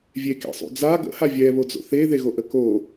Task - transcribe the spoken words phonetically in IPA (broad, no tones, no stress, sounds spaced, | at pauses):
vʲ e k ḛ sˤ ṵ d͡z a ɡ ə̰ h a vʲ ɛ β o d͡z o̰ θ e ð e ɣ o ʔ ə k o